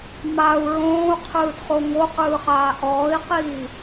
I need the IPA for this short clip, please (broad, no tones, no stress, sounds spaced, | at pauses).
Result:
m a u̯ ɹ õː u̯ qʰ ɯː d χ o ŋ o q ɯː χ aː ʔ ɔː i̯ q iː